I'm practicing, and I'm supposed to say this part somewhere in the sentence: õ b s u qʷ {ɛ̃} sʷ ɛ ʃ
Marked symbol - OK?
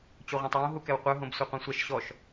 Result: yes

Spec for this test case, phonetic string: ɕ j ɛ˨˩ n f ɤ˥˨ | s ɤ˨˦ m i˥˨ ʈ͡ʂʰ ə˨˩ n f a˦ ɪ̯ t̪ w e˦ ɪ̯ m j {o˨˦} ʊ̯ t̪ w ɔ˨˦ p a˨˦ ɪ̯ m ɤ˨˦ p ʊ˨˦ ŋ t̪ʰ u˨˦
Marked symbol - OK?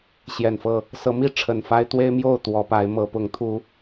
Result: no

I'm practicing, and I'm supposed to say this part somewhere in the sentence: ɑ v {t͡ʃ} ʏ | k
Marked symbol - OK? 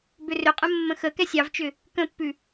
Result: yes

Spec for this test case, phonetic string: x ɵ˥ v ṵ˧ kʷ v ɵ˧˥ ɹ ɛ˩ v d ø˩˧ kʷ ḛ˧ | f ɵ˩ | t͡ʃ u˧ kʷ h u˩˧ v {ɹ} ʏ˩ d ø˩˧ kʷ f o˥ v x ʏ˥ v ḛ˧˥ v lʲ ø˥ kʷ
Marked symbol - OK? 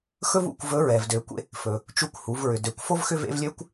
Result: yes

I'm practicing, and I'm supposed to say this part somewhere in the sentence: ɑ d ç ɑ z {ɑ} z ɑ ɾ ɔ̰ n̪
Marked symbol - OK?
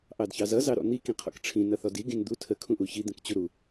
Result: no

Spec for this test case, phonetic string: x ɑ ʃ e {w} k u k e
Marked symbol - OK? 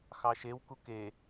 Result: yes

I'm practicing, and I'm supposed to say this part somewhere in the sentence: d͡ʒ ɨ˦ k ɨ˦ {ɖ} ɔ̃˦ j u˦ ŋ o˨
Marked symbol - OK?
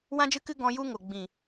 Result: no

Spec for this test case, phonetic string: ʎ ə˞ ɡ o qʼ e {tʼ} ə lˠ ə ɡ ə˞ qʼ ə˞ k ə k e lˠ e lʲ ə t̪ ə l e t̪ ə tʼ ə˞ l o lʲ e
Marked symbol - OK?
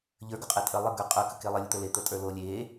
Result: yes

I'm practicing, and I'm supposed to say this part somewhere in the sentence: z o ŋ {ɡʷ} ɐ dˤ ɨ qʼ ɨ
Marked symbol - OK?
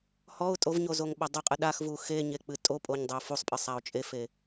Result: no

